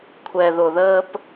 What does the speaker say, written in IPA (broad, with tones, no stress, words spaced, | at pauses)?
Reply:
kʷʰɛ˨ðʊ˨ðəː˦p